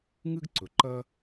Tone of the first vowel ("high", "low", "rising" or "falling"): high